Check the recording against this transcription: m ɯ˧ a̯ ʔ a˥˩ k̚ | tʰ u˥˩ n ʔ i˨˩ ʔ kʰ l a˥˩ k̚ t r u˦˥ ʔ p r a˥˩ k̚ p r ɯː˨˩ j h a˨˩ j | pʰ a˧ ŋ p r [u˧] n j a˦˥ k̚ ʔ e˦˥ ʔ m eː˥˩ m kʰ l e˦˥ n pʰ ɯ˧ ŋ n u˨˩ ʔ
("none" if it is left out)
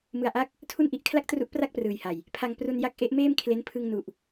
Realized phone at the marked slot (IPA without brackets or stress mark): u˧